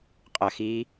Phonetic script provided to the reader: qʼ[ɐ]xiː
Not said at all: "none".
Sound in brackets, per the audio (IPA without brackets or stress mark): ɐ